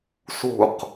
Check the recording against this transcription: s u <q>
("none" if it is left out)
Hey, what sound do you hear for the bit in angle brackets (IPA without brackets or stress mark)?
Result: q